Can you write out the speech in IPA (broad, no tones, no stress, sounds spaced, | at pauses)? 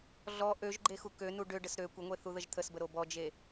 ɮ ɔ ʔ ø ʒ ɡ͡ǃ e x u k ø n u ɖ ø ɖ ə s ɾ ø kʷ ə ŋʷ e θ u ð ə ʒ t̪ʰ ə s b ə ɾ o b ɔ d͡ʒ e